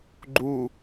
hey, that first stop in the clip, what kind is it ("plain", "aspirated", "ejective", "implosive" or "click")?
click